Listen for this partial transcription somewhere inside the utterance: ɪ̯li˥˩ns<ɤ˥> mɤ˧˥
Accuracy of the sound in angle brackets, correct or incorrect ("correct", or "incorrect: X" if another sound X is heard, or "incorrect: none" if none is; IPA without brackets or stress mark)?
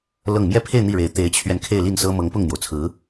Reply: correct